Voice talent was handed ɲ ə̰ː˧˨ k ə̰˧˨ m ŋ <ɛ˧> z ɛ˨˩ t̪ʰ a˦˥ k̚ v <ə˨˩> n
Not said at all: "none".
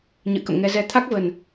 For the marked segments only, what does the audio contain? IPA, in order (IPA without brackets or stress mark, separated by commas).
ɛ˧, ə˨˩